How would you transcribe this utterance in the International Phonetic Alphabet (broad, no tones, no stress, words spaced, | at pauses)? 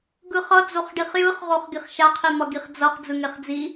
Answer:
ɡɯχʌ d͡zoχɖiχjɯχʁoχ ɡiχʃaqʰimʌ ɡiχd͡zʌχ d͡zɯŋeχd͡zi